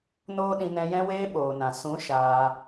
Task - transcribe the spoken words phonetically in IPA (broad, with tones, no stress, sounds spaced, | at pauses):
n oː˦ ɗ ĩ˧ n ɛ̃˧ j ɛ̃˧ w eː˧ ɓ oː˨ n ã˨ s ũ˨˦ ʃ aː˧